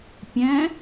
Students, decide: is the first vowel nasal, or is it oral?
nasal